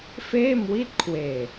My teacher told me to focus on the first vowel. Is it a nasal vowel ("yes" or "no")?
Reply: no